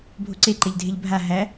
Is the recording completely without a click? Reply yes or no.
no